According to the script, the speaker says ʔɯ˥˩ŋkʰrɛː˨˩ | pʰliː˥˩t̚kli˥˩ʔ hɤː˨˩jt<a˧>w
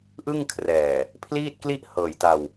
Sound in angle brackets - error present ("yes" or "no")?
no